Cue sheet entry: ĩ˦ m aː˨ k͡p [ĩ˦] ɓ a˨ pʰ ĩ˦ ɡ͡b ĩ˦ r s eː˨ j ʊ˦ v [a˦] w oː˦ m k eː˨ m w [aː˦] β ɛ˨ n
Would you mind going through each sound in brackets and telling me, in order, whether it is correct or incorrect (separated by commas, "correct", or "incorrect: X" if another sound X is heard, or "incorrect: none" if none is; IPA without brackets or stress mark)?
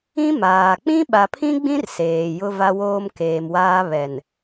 correct, correct, correct